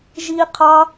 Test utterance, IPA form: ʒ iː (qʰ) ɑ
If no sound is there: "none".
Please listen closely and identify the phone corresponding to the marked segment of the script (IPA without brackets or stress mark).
qʰ